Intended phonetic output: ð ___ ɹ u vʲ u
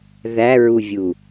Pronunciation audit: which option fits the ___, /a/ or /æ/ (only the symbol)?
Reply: æ